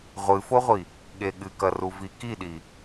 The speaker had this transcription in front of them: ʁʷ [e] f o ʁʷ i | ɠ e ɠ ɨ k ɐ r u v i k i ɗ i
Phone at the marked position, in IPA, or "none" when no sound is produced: ɨ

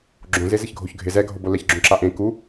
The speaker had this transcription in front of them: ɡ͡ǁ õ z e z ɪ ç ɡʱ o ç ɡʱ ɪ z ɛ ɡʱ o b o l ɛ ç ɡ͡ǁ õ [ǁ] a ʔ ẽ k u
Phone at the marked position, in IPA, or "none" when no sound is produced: ǁ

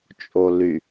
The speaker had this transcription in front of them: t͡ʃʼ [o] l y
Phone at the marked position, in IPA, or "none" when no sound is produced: o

